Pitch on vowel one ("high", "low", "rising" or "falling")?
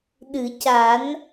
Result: low